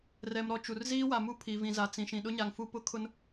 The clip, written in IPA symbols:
rɛ˨mɾɔ˨ t͡ʃu˨rziː˦wa˨ mu˦pʰi˨ vĩ˨za˨ t͡sĩ˨ ʃĩ˨ɗʊ˦ɲa˨ŋ fu˦pʊ˦kʰʊ˦n

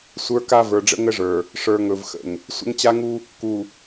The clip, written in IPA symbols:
sʷə˞˦ka˦ və˞˨ɖ͡ʐə̰˦ŋə˦ʐə˞˨ | ʂə˞˨ŋɵ˨v xə̰˨ŋ | sʷə̰˦ŋt͡ɕa˦ŋu˦ | ku˨

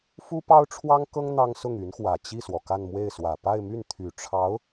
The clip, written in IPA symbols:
fu˥pɑ˥ʊ̯ ʈ͡ʂʰwɑ˥ŋkɤ˥ŋ n̪ɑ˥ŋsʊ˥˩ŋy˧˥nxwä˨˩ t͡ɕi˥˩swɔ˩ ka˥˧nmwe˥˩ɪ̯swä˨˩ pa˥˧ɪ̯my˥˩n t̪ʰy˨˩ ʈ͡ʂʰɑ˧˥ʊ̯

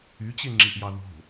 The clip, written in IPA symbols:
yt͡ɕeŋ͡ǁiʔjɑ ðo̤

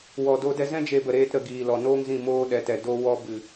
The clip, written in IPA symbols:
wɔ˨do˧ dɛ˧zɛ̃˦ d͡ʒe˧bə˨ɾeː˧t ɾə˨ɡiː˨lɔ˨ noː˦ŋzĩ˦˨ moː˧ ɗɛ˨tɛ˨ do˧wɔ˧ bɨ˨

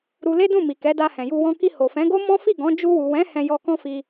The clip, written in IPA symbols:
ɾu˧le˦dũ˦˨mi˨ kɛ˨˦da˧hɛ̃˨ju˧ wɔ̃˧ ki˧ ho˨fɛ̃˨˦ɡo˦ mɔ̃˦ fi˦˨ɡɔ̃˨˦ d͡ʒu˧wu˨ wɛ̃˨˦ hɛ̃˧jɔ˧kɔ̃˦fi˧

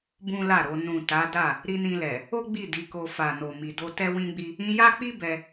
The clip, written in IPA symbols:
bũ˦la˦˨ɾo˧ nũ˨ ta˨˦da˦˨ | ɾi˧nĩ˧lɛ˨ | o˦ ɡ͡bi˦˨ di˨˦ko˧ fa˨no˨mi˨do˧ tɛ˦wĩ˦ɡ͡bi˦ | ĩ˧ja˦k͡pi˦ bɛ˧

